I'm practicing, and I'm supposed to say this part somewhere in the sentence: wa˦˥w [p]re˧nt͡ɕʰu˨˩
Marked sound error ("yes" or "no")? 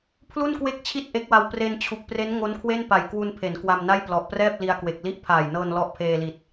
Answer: no